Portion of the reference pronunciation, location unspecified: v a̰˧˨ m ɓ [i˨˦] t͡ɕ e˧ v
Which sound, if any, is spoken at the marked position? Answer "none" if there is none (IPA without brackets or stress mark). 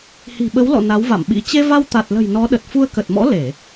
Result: ḭ˧˥